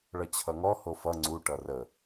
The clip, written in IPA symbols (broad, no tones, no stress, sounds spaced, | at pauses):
ɭ ʌ t͡ɕʰ ʌ ŋ ɔ h o f ʌ ŋ͡ǀ u ʈ ʌ r ə